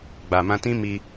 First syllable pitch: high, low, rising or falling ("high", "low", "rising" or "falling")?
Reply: low